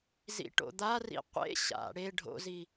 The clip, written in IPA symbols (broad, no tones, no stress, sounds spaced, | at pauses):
z ḭ ʈ o̰ d̪ a r ḭ qʷ ḛ ɕ a̰ ɽ e ɖʱ o̰ z i